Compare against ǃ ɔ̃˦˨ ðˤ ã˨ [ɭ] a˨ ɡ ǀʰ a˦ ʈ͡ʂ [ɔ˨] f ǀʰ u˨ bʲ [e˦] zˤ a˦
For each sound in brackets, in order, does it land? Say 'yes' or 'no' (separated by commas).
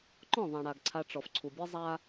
no, yes, yes